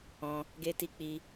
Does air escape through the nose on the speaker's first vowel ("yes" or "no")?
yes